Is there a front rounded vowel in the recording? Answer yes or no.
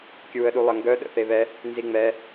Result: yes